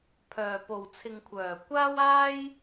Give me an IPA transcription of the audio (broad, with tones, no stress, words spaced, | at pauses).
pʰœː˨po˨w t͡sʰɪ˨ŋkʷʰœː˨˩ kʷaː˥waː˥j